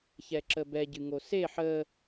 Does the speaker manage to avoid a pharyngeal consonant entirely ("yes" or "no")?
no